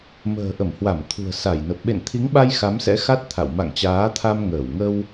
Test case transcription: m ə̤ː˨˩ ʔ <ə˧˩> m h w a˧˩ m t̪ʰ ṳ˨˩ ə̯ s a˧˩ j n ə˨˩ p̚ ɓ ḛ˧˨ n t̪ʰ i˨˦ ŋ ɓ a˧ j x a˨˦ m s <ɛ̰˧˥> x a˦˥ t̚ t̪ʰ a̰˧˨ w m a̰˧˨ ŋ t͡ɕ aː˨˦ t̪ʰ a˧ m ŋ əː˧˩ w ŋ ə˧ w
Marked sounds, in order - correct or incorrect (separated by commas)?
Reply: correct, correct